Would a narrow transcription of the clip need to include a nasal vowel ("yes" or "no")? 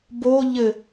no